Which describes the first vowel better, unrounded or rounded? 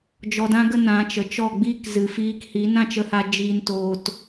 rounded